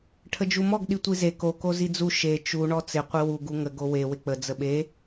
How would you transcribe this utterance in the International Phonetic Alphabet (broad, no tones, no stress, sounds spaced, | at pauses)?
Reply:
ʈʰ ə d͡ʒ u m ɔ ɡ ɗ i tʷ i z e k o k o z i d͡z u ʃ e t͡ʃ u ɳ ɔ t͡s ɪ qʷ i w u ɡ u ŋ ə ɡ o w e w ɪ k͡p ə d͡z ə ɓ e